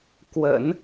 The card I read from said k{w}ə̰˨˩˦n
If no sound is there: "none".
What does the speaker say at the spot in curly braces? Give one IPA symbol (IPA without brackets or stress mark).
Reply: w